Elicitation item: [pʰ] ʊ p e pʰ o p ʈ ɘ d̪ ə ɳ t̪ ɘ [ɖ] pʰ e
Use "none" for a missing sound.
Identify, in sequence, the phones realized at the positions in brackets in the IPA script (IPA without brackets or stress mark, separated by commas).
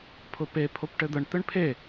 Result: pʰ, ɳ